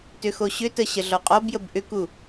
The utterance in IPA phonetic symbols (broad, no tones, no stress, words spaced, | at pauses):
tʏxoɕʏtə ɕəɮɔqʼɔbjəb ʔʏku